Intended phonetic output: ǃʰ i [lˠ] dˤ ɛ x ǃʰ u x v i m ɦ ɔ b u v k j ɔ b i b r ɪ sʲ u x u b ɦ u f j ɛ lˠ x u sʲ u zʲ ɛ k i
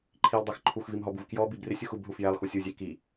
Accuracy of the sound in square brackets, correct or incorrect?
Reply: correct